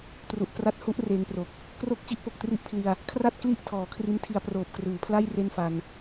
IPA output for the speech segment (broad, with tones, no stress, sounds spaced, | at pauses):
t r u˨˩ ʔ k r a˦˥ t̚ h u˦˥ ʔ r eː˧ ŋ p r o˨˩ k̚ | k r o˦˥ k̚ t͡ɕ i˦˥ ʔ p o˨˩ k̚ t r i˥˩ ʔ pʰ l i˧ a̯ | kʰ r a˥˩ t̚ k l i˥˩ ʔ tʰ ɔː˩˦ kʰ r i˦˥ n tʰ i˧ a̯ p r oː˨˩ p̚ k r ɯː˩˦ pʰ l a˥˩ j r e˥˩ n f a˧ n